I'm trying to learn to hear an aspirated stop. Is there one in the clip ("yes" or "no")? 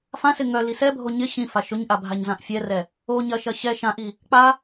no